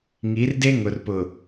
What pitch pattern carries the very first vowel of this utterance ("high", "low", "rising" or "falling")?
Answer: rising